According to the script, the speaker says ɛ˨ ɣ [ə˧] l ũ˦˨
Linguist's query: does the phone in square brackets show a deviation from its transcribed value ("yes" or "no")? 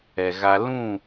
yes